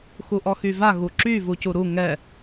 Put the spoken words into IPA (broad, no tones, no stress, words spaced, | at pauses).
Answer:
xuʔɔxyva ɣuǁy vucuɾu ŋɛ